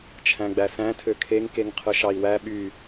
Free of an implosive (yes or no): no